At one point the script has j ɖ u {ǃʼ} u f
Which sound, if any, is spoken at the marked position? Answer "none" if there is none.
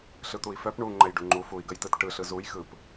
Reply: ŋ͡ǃ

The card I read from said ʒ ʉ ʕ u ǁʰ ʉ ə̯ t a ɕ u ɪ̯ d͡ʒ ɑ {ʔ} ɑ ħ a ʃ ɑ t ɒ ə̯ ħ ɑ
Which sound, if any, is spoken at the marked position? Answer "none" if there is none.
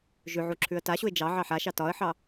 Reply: ʕ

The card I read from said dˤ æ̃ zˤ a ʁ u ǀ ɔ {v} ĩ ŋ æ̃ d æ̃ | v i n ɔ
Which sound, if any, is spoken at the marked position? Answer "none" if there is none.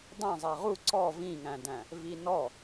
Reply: v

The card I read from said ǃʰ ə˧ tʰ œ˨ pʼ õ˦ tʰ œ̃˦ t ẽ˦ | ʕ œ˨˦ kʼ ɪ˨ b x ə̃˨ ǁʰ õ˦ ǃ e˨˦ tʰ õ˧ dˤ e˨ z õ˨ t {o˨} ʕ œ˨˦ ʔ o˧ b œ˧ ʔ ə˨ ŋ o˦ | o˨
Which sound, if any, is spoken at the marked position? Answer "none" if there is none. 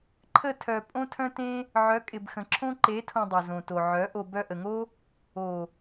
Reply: o˨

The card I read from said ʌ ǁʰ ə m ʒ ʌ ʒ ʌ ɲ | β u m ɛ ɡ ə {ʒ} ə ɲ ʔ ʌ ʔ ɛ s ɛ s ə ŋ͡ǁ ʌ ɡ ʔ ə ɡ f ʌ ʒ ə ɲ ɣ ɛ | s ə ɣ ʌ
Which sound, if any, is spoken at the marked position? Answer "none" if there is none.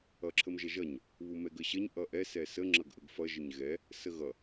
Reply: ɕ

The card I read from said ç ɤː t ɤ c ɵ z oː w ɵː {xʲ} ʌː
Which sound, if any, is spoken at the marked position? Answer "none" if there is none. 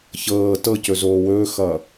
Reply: x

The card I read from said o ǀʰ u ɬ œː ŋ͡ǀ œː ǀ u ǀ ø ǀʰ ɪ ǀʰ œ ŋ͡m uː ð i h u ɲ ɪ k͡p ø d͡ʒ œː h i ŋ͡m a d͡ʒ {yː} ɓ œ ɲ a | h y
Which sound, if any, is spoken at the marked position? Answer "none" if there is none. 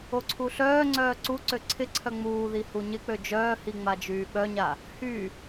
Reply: yː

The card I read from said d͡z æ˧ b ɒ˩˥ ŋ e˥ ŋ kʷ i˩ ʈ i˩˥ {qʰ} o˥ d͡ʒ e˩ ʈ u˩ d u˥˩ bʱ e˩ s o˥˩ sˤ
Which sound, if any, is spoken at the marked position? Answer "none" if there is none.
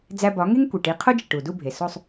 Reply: qʰ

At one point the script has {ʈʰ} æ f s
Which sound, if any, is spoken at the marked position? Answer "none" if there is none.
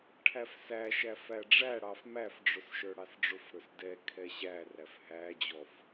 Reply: ʈʰ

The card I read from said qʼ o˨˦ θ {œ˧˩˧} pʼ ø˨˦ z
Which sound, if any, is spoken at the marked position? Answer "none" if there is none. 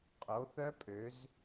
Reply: œ˦˥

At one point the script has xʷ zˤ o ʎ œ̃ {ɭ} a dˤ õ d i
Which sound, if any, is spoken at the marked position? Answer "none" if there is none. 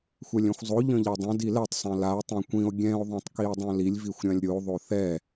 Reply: ʎ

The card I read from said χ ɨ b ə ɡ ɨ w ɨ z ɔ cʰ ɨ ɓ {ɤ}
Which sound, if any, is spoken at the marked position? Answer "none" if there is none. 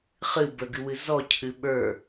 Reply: ə˞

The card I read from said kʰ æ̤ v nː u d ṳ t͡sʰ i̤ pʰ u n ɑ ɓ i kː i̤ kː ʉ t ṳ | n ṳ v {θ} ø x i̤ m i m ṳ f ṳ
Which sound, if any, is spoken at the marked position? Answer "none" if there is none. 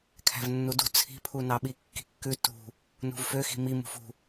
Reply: f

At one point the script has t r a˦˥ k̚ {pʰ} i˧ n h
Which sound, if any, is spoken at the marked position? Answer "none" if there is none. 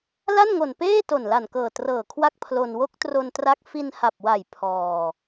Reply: f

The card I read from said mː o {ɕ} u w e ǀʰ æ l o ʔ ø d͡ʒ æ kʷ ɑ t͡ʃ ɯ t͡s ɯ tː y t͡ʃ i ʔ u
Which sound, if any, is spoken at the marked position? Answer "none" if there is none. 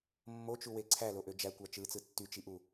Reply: t͡ʃ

